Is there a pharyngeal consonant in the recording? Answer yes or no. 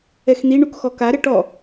no